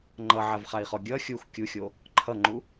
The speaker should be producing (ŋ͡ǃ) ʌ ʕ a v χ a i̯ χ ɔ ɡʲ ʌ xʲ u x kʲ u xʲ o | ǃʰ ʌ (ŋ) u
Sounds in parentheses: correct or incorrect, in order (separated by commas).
correct, incorrect